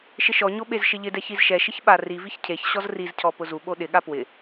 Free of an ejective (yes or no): yes